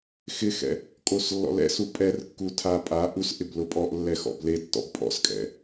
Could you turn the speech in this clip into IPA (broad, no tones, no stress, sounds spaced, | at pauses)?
x ɪ x ɛ̰ | kʼ o s lː ɔ̰ l ɛ̰ s u pʼ ɛ r kː u tʰ a pʼ a ʔ u s ʔ ɪ b l ʊ pʼ ɔ ʔ lː ɛ x ɔ̰ b l e tː ɔ̰ b pʼ ɔ̰ s kʼ ɛ̰